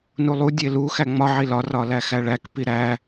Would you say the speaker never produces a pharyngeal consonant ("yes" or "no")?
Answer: no